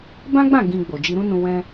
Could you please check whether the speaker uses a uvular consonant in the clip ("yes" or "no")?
no